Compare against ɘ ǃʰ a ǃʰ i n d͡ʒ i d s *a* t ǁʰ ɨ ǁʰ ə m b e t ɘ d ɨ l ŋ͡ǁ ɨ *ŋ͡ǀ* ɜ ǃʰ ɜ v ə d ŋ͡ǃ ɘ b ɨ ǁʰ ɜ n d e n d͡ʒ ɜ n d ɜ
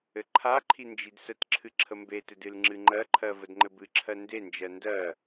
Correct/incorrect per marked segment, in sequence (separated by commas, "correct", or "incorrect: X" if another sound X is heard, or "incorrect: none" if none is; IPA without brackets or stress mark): incorrect: ə, incorrect: ŋ͡ǃ